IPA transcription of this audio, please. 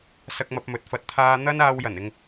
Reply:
s ɐ˧ k̚ m ɐ˧ p̚ m ɵ˨˥ t̚ f ɐ˨˥ t̚ t̪ʰ aː˧ n̪ ɐ˥ n aː˧ w j ɐ˨˩ n ɪ˧ ŋ

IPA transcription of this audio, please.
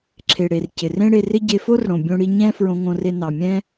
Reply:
ǁʰ e˩ ɽ e˩ r c ɪ˩ r ẽ˥ ɽ e˧ r ɪ˥ ɟ e˧ f o˥ r ɽ õ˩ bʲ õ˥ ɽ i˧ ɲ ɛ̃˥ f ɹ õ˧ ŋ õ˧ r e˧ n ɑ˩ mʲ ɛ̃˥

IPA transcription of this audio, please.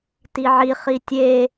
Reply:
t i ʕ i χ i tʲ e

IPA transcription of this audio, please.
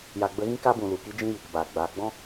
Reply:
j a˨ ɡ͡b ə˧ ɣ ĩ˦ k a˦ b ũ˨ l u˨ k i˦ d͡ʒ ĩ˦ j i˨ k b aː˨ ɡ͡b aː˧ ɡ͡b ɔ̃˦

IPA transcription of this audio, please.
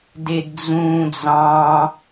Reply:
d e d d͡z ũː d͡z ɑ̃

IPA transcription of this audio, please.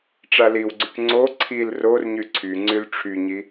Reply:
ʈ͡ʂ a l i w ɡ͡ǀ y k ŋ͡ǀ o ǀʰ i l r o r ɲ y ǀʰ y ŋ͡ǀ y l ʈ͡ʂʰ y ɲ i

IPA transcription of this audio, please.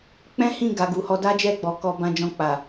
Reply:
k͡p ɛ̃˦ h ĩ˦˨ ɡ a˨˦ ɡ u˧ h ɔ˦ d a˦ d͡ʒ ɛ˦˨ ɡ͡b ɔ˨ k ɔ˧ b ã˧ d͡ʒ ɔ̃˧ k͡p a˨

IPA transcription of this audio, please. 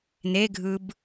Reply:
n e ɡʱ ɯ b

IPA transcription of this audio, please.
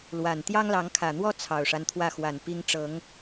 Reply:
l w a˨˩ n t̪ j ɑ˦ ŋ l ɑ˨˦ ŋ kʰ ä˨˩ n̪ w ɔ˦ t͡sʰ ɑ˨˩ ʊ̯ ʂ a˦ n t̪ʰ w ä˥˨ x w a˨˩ n p i˦ ŋ ʈ͡ʂ ɤ˨˦ ŋ

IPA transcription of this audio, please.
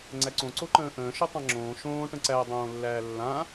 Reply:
ŋ͡ǀ æ ǀ õ ǀ o ǃ ə̃ː ʔ ə̃ː ʃ o tˤ ã ŋ͡ǁ õː ʃ õː ʈ ə̃ ǀ æ dˤ õː lː æː lː ã

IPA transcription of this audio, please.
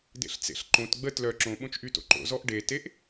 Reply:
d ḛ ɬ t͡s ḛ ɬ ǃ õ t ɡ͡b ə t l œ ǁ õ ɓ õ t͡ʃ ʔ y t o̰ ǃ o̰ z ɔ ʔ ɖ e t e ʔ

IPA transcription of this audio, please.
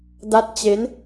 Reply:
d a˦˥ t̚ t͡ɕ e˦˥ n

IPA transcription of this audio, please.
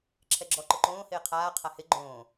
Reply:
ǁʰ ɛ ɡ͡ǁ ɔ ǃ ʊ ǃ õː h ɪː qʰ aː qʰ a h ɪ ɡ͡ǃ õː

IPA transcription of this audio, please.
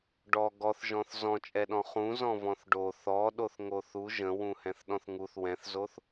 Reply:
ɖ ɔ ɡ ɔ θ ʒ ɔ̃ θ z ɔ̃ t͡ʃʼ ɛ ɗ ɔ̃ χ ũ z ɔ̃ v ɔ̃ θ ɖ o θ ɔ ɗ o θ ŋ o θ u ʒ ə̃ w ũ h ɛ̃ θ ɗ ɔ̃ θ ŋ u θ w ɛ̃ θ z o θ

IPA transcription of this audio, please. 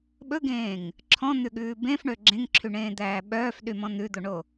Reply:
ɓ ɵ ɡ ẽː ŋ | ǁʰ ɔ̃ n̪ ʉ ɠ ʉː b ẽ f ɳ ø ɡ͡ǁ ẽ ŋ ǁʰ y ɳ ẽː d̪ æː ɓ œː f ɗ y m ɔ̃ n̪ ʉ d̪ o ɳ o

